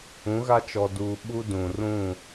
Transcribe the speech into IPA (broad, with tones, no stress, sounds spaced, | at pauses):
ũ˨˦ ɣ a˦ t͡ʃ ɔ˨ d uː˨ ɓ u˦ d ũ˨ r ũ˦˨